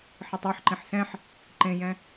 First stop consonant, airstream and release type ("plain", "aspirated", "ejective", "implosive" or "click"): plain